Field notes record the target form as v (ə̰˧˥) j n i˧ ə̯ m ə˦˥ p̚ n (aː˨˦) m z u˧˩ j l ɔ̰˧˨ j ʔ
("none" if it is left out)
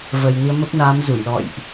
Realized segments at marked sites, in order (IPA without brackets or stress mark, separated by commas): ə˨˩, aː˨˦